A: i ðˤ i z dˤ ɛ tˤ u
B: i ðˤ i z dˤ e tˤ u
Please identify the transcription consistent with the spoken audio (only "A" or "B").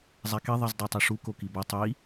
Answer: A